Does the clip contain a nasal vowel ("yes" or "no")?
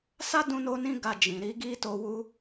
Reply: yes